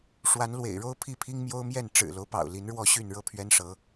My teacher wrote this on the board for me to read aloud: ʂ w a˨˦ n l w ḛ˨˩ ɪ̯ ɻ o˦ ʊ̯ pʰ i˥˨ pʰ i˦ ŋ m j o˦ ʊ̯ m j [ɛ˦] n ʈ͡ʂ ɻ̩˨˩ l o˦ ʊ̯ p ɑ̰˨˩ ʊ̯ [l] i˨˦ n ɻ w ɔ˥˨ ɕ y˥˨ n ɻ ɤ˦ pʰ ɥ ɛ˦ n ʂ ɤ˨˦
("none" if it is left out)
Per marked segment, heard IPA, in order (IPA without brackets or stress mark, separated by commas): ɛ˥˨, l